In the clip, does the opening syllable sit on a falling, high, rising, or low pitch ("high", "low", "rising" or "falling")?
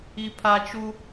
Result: high